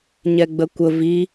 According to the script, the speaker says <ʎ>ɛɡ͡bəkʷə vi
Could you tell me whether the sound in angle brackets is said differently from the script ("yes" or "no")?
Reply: yes